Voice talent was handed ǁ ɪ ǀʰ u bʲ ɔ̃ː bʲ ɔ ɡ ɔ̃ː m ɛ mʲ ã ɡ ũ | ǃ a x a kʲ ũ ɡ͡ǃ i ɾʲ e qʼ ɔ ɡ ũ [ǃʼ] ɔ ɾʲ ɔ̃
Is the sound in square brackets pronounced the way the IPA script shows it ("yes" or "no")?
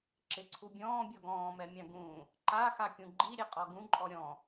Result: yes